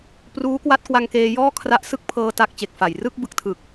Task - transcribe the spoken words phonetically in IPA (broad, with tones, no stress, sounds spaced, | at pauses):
p r uː˦˥ k w a˦˥ t̚ k w a˧ ŋ k eː˧ j ɔː˥˩ kʰ r a˦˥ ʔ s ɯ˥˩ k̚ pʰ ɤː˧ t a˦˥ k̚ t͡ɕ e˨˩ k̚ f a˨˩ j r ɯ˥˩ k̚ b ɯ˨˩ k̚ tʰ ɯ˨˩ k̚